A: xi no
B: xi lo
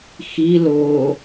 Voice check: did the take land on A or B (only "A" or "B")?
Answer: B